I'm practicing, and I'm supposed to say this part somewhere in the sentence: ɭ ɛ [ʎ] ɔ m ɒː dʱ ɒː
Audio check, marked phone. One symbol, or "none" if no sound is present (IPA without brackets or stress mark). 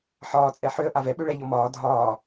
ʎ